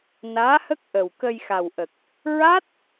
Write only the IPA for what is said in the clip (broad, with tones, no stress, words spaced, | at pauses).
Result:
naː˧˥hə˦˥k̚ ʔə˨˩wkə˧jxa˨˩wʔə˨˩k̚ | ɹa˦˥t̚